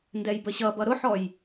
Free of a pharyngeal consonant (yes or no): no